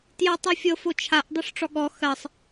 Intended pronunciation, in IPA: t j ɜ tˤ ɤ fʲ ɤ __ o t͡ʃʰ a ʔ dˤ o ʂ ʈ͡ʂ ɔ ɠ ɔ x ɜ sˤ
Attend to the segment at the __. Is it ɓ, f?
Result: f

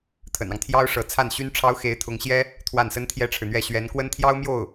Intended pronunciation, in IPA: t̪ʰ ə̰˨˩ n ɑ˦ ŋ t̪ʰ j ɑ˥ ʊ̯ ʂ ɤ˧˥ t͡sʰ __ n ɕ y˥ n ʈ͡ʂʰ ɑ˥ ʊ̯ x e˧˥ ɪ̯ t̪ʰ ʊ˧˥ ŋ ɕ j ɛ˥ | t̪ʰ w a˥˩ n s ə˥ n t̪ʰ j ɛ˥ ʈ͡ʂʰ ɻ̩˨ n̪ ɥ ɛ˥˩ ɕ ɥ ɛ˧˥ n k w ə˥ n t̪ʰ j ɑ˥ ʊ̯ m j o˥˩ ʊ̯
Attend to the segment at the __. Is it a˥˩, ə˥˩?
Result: a˥˩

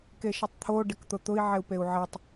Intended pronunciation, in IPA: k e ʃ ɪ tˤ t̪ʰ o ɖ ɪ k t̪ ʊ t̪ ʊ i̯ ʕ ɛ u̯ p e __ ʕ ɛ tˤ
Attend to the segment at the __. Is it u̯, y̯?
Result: u̯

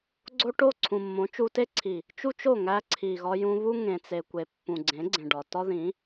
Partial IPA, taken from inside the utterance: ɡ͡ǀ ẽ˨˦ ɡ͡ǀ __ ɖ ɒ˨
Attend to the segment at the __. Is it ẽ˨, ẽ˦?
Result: ẽ˨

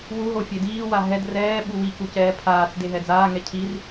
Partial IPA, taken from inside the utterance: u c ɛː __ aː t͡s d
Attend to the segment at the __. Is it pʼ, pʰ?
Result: pʰ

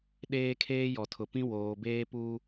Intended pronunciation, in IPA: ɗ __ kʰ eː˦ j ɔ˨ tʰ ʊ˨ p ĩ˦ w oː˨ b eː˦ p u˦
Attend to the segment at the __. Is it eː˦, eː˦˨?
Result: eː˦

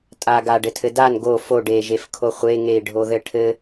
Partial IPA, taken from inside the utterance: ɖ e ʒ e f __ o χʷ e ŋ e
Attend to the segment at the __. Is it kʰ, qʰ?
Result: kʰ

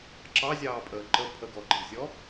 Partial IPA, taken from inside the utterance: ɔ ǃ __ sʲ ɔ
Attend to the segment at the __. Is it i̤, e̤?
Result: i̤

